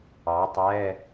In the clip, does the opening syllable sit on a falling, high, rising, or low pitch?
rising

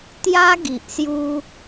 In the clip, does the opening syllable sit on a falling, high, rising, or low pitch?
high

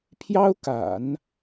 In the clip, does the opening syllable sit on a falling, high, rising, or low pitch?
high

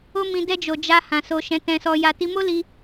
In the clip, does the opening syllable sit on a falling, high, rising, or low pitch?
high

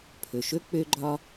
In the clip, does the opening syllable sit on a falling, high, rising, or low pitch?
low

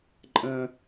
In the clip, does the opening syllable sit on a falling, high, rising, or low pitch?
high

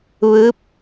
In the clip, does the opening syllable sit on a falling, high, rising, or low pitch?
rising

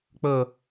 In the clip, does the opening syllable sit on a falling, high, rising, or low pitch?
falling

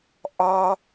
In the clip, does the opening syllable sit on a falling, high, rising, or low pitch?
high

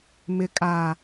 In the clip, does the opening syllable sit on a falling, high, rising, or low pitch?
low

